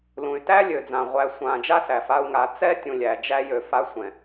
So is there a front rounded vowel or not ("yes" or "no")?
yes